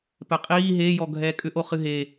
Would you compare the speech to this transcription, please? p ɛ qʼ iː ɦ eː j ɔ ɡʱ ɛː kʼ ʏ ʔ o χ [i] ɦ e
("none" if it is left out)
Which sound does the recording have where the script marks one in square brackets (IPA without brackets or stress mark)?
ɨ